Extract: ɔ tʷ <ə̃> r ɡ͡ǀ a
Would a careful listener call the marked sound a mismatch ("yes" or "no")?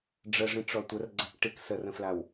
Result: yes